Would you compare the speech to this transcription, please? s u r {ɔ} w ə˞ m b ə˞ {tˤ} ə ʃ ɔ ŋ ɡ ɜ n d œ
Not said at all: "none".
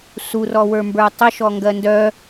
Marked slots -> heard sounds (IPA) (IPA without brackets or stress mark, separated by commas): ɔ, tˤ